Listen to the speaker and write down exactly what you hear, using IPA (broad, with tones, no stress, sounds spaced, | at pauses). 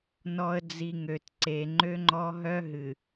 n ɔ˨ ə̯ d͡z i˨ ŋ ø˨ t ǀ e˨ ŋ͡ǃ ø˦ ŋ͡ǃ ɔ˦ ɦ œ˦ ɦ ɨ˨